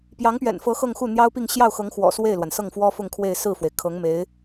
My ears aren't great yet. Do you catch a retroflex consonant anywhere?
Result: no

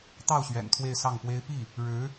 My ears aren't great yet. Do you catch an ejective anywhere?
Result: no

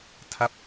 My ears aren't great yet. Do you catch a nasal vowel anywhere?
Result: no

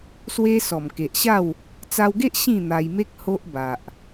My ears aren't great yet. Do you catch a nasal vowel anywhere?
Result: yes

